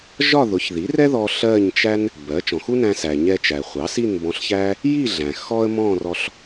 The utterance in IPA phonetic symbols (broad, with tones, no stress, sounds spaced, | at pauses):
ʒ ɒ˥˧ ð ʊ˩˥ ç ð i˩˥ r ɛ˥ ð ɔ˧ ɬ ɜ˥˧ ɲ t͡ʃ æ˥ n | b ɜ˩˥ t͡ʃ ɔ̃˩ x u˥ n æ̃˧ s æ˩ ɲ ɛ˧ t͡ʃ æ˩ χʷ ɑ˩˥ s i˥˧ n b ɔ̃˧ ɬ ç æ˥ | j i˥˧ ɮ æ̃˩ x ɔ˥ ə̯ m ɔ̃˥˧ r ɔ˧ ɬ